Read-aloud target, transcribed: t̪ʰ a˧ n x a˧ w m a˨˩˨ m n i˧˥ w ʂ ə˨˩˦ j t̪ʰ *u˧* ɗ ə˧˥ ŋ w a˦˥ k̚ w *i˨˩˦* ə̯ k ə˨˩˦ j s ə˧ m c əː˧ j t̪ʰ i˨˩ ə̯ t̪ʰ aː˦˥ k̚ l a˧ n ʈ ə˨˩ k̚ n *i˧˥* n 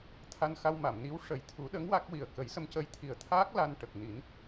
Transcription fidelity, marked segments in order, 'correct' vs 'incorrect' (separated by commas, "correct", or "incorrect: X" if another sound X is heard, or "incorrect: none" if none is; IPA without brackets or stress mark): incorrect: u˨˩˦, incorrect: i˨˩, incorrect: i˨˩˦